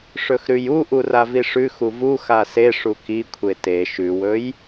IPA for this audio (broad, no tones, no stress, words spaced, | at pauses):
ʂɵxɾʉjuʔu raviʂʉxu vuxa se ʂukikʷʰe te ʃʉwɵj